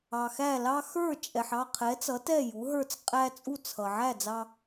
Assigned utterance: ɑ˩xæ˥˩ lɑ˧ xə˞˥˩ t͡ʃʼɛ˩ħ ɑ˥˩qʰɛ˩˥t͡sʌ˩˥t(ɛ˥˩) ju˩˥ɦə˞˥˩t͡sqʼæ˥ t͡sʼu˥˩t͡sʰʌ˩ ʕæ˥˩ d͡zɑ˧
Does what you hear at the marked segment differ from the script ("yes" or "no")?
no